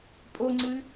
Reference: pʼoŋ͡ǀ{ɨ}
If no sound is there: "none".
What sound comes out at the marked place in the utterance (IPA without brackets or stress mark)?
ɨ